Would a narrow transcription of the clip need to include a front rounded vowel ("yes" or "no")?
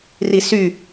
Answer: yes